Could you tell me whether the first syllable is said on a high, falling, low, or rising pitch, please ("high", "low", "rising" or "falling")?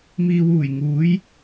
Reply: low